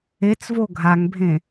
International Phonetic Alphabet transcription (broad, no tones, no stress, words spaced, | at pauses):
et͡svo ɡʱaŋbʱẽ